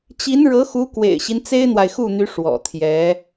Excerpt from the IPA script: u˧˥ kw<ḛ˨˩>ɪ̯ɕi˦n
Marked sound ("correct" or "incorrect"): correct